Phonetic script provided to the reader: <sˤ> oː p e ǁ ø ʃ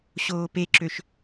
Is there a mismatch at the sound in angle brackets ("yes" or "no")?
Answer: yes